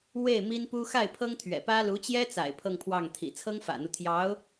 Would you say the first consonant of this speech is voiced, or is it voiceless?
voiced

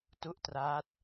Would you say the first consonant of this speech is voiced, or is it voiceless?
voiceless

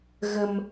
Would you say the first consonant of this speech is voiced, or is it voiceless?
voiced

